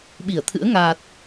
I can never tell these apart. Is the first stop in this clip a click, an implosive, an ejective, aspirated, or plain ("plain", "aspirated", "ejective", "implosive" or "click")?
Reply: implosive